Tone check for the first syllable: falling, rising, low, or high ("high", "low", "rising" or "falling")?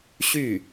falling